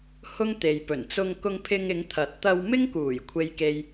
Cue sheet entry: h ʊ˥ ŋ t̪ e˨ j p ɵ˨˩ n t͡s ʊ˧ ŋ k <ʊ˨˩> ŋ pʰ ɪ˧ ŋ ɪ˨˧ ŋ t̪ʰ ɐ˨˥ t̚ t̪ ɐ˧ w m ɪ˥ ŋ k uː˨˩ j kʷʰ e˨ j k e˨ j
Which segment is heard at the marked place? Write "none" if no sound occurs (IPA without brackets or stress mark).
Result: ʊ˧